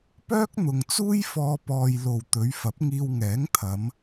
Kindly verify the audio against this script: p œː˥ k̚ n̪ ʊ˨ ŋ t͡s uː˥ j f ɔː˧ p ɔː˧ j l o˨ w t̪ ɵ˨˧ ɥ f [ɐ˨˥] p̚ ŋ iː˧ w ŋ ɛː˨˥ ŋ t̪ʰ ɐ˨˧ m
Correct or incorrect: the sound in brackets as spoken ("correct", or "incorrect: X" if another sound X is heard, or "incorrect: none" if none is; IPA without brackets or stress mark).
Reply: correct